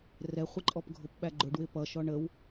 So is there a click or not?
yes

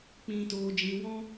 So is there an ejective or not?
no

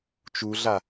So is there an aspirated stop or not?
no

